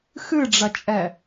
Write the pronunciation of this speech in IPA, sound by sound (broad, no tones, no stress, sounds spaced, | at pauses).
x ɨ ɖ͡ʐ ɐ t͡ʃʼ ɛ